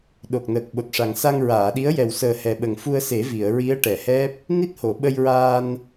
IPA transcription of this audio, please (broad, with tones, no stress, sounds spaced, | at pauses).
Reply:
ɗ o˨˩ k̚ n əː˨˩ k̚ ɓ o˨˩ t̚ ʂ a˨˩ ŋ s a˧ ŋ ɹ aː˨˩˨ ɗ i˧˥ ə̯ j ɛ˨˩ w s əː˨˩ h ɛ˨˩ ɓ ə˨˩ ŋ f u˧ ə̯ s e˨˩˦ v i˨˩˨ ə̯ ɹ i˧˥ ə̯ ʈ ɛ˨˩˨ h ɛ˦˥ p̚ | n i˦˥ t̚ h o˨˩˨ ɓ ə˧ j ɹ aː˧ n